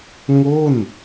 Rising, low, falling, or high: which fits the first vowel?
falling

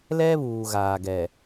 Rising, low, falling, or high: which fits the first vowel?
high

